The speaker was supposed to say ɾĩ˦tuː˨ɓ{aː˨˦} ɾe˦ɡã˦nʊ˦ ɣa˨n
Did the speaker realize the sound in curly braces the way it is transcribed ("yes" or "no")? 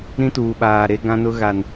no